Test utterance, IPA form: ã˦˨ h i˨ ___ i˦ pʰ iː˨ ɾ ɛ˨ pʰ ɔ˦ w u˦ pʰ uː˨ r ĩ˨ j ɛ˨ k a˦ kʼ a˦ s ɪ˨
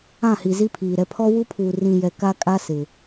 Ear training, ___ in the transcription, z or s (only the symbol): z